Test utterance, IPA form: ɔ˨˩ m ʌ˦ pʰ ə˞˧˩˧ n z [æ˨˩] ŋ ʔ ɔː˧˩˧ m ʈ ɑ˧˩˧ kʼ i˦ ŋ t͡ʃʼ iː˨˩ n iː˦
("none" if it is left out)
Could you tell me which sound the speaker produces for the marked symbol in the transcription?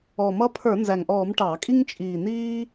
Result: æ˨˩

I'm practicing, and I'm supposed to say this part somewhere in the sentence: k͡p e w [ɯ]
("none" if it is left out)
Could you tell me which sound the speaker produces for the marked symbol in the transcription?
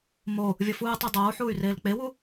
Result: u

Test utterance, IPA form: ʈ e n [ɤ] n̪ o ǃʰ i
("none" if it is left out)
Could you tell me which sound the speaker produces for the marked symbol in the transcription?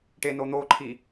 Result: o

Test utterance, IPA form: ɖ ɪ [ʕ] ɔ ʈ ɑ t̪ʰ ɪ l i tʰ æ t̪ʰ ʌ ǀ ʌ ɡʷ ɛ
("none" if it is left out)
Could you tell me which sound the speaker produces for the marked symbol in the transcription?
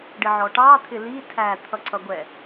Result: ʕ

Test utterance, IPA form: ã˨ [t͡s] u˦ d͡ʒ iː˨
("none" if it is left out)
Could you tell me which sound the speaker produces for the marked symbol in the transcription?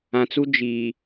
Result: t͡s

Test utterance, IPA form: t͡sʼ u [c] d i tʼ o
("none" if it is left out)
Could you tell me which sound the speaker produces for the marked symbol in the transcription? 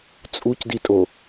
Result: c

